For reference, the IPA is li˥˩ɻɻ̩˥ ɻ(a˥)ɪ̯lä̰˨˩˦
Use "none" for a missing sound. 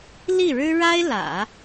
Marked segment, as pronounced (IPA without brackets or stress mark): a˥